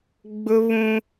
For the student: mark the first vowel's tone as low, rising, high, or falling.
high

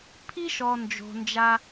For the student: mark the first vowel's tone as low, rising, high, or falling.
high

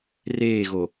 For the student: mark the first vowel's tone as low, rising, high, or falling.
falling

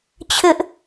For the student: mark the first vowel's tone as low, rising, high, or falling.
high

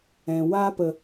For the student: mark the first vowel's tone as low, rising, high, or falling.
low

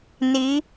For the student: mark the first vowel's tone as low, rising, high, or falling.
rising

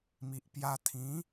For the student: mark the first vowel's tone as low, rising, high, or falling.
low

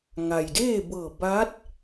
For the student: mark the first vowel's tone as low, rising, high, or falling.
low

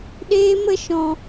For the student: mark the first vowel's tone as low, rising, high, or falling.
high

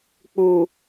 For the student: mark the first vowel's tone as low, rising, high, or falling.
low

